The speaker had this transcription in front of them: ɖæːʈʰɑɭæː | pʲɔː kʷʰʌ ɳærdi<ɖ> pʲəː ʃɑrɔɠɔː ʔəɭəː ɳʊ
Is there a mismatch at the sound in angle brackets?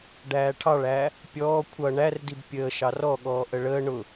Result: yes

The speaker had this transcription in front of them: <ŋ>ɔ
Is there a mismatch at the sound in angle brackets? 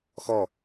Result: yes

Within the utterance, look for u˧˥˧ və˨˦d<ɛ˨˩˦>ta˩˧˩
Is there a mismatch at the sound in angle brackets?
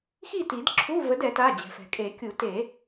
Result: no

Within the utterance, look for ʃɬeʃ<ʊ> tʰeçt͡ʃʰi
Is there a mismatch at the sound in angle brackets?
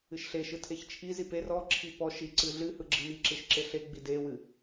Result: yes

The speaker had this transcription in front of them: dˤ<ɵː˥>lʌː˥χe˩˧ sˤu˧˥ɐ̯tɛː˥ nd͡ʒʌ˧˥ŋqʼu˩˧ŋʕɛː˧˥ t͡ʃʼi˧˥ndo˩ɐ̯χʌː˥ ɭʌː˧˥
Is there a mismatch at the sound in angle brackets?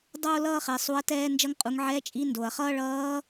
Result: yes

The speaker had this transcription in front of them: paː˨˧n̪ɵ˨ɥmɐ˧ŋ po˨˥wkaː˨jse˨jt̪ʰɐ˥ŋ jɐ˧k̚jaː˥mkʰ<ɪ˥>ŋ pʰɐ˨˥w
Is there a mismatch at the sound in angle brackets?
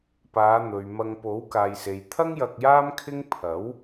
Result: no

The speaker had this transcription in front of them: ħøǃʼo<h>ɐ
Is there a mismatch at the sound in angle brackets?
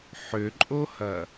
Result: no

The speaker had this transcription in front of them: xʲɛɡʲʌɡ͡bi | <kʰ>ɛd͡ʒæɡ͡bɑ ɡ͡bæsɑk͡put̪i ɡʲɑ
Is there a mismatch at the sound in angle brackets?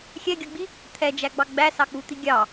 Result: yes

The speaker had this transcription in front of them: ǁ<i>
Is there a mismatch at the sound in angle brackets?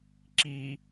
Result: no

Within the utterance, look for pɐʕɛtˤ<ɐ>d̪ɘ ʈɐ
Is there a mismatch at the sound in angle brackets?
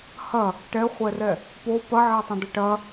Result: yes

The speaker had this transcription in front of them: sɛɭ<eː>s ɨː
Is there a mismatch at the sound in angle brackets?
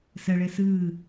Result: no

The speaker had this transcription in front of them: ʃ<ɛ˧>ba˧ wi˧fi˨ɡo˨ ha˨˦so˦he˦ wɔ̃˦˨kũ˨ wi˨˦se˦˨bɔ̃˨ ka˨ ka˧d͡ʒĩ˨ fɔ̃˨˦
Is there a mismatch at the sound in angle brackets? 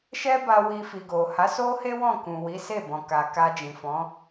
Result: yes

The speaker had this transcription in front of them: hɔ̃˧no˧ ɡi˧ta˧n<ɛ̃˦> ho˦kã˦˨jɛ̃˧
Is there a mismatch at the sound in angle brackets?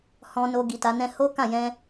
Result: no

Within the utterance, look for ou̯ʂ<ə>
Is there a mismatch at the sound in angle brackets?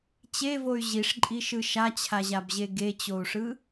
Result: yes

